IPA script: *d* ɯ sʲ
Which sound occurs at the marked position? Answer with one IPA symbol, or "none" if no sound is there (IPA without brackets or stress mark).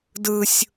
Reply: d